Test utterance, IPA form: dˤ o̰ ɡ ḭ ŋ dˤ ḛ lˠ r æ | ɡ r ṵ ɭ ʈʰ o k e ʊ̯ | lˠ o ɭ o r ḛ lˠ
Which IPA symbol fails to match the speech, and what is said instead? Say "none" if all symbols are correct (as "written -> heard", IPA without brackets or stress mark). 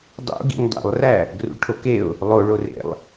none